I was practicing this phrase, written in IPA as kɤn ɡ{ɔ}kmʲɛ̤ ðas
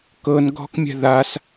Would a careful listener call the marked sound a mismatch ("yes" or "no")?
yes